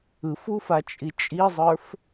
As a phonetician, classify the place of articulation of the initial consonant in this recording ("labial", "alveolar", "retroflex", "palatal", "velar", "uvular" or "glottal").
labial